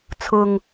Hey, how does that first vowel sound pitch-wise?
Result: low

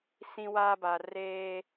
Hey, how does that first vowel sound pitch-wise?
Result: high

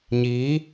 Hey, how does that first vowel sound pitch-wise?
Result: rising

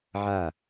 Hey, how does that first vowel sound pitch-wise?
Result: falling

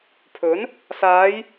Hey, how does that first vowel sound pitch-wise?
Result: rising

